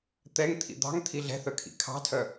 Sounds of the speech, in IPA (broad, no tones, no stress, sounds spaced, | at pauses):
t̪ ɛ ŋ t̪ʰ ḭ d̪ ɑ̤ ŋ t̪ʰ i ɮ ɛ̤ θ œ kʰ ḭ kʰ ɑ̤ tʰ œ